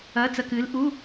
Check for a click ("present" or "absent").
absent